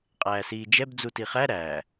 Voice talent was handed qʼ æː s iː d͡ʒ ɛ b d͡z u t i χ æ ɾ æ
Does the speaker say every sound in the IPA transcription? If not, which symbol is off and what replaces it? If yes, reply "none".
none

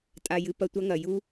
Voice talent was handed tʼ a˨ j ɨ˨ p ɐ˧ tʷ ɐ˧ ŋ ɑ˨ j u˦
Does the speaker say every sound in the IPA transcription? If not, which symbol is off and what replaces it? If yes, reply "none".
ɑ˨ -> ɐ˨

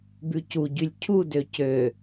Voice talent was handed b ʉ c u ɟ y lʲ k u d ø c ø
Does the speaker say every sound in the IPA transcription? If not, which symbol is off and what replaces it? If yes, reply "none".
k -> cʰ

